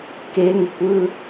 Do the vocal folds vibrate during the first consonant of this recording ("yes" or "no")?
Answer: no